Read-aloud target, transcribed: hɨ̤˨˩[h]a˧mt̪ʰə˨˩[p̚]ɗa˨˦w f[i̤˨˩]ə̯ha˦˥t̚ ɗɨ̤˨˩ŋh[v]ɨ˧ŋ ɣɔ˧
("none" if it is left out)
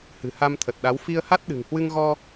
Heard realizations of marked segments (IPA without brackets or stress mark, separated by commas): h, t̚, i˧, w